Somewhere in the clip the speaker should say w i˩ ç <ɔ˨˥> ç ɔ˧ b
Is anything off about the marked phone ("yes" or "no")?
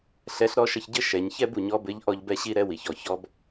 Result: yes